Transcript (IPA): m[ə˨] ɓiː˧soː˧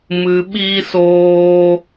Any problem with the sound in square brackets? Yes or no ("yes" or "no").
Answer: yes